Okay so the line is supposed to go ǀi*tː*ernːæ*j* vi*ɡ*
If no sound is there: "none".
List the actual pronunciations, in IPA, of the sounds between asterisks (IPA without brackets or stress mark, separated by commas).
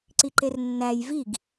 ǃ, j, ɡ